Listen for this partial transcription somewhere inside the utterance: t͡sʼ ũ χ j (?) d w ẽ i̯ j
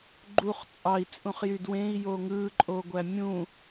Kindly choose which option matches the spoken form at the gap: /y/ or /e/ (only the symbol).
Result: y